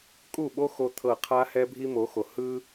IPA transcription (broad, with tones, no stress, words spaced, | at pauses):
kʼu˦˨ɓo˦ xo˦t̪ʰɤ˦˨ qʰa˦ hɛ˦bʱi˦mo˨˦xo˨ hɯ˦